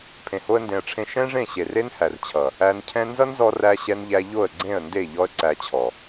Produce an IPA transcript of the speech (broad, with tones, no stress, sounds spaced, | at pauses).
pʰ ẽ˨ h o˦ ə̯ n d ẽ˧ ə̯ ʈ͡ʂʰ ẽ˦ ʃ ɛ̃˦ ʐ ẽ˦˨ ɕ e˨ r e˦ n h æ˨ r t͡ɕʰ ʌ˨ | æ˧ n cʰ ɛ̃˦ n z ʌ˦ n z ɔ˧ r æ˧ ɕ ɛ˧ n ʎ æ˧ ʎ o˦˨ ə̯ ɡ͡ǀ ẽ˦˨ ə̯ n d e˦˨ ʎ ɔ˦ ə̯ ǀ æ˧ t͡ɕʰ ɔ˨